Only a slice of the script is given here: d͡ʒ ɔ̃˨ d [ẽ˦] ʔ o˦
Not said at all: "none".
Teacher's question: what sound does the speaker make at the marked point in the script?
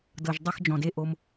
e˦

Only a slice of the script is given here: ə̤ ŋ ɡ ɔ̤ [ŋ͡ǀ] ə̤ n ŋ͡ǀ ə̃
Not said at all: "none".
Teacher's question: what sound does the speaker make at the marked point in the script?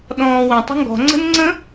ŋ͡ǀ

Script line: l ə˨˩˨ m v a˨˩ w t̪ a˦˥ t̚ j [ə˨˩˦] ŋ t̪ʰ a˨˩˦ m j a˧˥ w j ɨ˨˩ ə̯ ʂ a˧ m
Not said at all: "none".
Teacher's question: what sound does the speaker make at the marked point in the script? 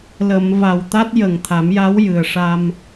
ə˨˩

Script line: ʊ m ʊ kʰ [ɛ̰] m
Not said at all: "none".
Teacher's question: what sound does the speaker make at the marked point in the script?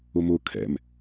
ɛ̰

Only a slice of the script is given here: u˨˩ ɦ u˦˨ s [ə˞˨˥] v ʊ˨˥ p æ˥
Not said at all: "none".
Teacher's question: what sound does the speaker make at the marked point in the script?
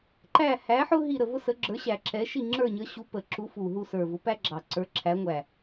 ə˞˨˩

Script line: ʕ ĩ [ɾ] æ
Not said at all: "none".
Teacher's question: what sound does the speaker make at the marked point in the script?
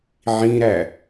ɾ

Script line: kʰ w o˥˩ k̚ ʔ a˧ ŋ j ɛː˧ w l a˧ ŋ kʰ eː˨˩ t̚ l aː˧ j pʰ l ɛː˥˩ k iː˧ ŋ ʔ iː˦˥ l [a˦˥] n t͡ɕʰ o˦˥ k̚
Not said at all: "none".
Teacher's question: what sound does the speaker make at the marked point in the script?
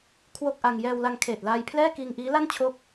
a˥˩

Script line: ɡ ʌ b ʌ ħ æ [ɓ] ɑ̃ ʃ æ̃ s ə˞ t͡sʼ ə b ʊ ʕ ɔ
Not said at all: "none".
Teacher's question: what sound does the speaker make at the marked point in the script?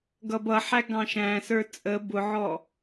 ɡ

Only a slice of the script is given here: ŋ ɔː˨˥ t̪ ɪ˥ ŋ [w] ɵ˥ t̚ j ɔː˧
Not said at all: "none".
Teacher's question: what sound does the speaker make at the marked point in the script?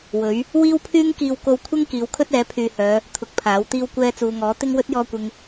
w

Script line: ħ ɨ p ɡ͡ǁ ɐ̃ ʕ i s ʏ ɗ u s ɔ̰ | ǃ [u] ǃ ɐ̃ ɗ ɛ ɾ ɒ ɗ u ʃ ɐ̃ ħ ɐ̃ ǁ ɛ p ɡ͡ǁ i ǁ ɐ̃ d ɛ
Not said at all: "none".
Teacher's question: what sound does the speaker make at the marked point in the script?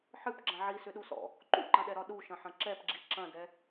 ṵ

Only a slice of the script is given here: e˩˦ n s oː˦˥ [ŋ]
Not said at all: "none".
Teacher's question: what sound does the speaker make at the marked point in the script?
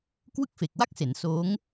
ŋ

